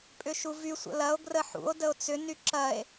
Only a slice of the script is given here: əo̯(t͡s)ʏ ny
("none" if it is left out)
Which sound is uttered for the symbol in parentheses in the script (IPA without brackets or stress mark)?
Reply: t͡s